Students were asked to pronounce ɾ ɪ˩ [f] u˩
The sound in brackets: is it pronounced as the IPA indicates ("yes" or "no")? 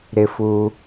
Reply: yes